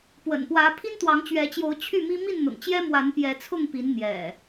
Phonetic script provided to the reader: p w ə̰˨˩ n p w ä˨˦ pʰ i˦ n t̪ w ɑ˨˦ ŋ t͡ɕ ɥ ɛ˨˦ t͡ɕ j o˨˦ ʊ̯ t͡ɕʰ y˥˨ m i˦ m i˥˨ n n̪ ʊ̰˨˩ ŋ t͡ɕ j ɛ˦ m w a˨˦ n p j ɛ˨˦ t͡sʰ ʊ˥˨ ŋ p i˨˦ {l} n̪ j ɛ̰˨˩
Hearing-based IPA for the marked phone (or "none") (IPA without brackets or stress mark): n